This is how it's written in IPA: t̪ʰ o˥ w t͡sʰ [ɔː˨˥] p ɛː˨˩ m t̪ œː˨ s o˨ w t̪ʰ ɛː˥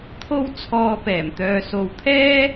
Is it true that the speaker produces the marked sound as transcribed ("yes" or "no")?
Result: no